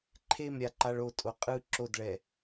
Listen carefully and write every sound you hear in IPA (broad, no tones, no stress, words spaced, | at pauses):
ǃʰemɾʲaǃaɭ otʼo qʼɯ ǁodɭɛ